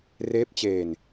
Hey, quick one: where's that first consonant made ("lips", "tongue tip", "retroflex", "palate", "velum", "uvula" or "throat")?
tongue tip